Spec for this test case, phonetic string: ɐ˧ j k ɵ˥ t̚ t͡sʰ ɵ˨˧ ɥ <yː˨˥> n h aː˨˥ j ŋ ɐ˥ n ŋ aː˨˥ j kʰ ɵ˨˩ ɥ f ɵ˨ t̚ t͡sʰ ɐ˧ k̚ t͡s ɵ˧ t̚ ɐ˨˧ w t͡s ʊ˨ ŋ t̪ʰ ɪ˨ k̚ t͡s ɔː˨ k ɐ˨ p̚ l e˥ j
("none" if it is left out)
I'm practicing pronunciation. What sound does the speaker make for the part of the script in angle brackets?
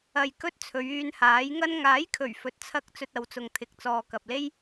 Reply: yː˧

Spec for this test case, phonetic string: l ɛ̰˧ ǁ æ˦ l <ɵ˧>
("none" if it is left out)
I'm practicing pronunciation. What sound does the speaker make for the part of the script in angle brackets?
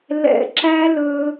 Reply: ɵ˧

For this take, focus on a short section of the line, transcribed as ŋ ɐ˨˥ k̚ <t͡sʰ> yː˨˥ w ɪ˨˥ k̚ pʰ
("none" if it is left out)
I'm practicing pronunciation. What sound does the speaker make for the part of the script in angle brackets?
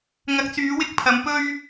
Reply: t͡s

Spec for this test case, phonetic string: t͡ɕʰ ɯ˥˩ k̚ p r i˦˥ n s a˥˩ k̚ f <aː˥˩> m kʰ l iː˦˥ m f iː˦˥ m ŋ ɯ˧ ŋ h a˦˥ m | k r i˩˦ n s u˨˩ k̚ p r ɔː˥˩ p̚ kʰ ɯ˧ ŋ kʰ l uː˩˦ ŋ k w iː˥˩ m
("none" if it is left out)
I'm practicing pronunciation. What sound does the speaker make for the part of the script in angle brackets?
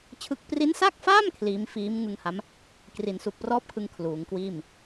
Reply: aː˥˩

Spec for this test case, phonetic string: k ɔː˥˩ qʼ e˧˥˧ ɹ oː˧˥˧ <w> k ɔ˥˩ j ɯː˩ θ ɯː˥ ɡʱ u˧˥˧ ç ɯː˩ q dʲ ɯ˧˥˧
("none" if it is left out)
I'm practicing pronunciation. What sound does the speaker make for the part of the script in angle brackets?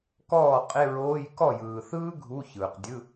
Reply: j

